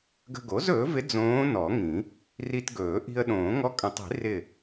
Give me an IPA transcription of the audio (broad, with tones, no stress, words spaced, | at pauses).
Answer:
ɡə̤˧ɡo˩˥zɵː˩˥vɪ˧˥ d͡zõː˧˥nɔ˨˩˦ŋĩ˨˩˦ | ri˧tɡɵː˨˩˦ ʔi̤˧ə̯ɗõː˨˩˦ ŋɔ˧˥kʼə̃˨˩˦tˤi̤˨˩˦ rɪ˧˩